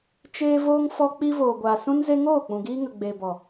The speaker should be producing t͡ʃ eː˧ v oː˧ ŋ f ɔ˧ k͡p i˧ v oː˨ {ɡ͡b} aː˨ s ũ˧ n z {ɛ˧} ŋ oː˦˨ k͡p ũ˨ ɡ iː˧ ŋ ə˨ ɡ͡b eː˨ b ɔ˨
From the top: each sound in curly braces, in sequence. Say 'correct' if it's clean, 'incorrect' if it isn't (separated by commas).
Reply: incorrect, incorrect